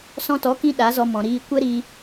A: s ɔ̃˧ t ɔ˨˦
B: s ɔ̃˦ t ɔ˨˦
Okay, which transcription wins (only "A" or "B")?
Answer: A